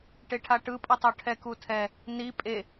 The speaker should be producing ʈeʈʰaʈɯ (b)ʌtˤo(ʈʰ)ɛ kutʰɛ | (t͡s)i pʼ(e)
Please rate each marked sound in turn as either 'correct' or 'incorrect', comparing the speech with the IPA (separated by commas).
incorrect, correct, incorrect, correct